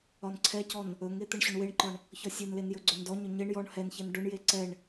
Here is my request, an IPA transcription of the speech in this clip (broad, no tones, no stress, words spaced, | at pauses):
ɒnǀʰɛcɔn | ɵŋe t̪ɛɳɕɵɳweɳǃɒɳ | çɒsʲenlen jɵɡ͡ǀɵndɔɲɵ ɲeɳ jɔɳ hɛnçɛn ɖɵɳje ǀɛɳ